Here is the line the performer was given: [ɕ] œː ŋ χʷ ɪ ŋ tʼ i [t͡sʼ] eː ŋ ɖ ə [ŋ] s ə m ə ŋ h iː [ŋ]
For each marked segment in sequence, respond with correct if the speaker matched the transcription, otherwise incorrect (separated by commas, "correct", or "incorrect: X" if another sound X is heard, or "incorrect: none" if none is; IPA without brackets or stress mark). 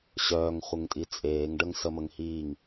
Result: correct, correct, correct, correct